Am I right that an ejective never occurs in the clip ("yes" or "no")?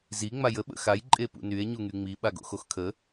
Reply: no